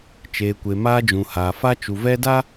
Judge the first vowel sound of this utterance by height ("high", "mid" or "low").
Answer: mid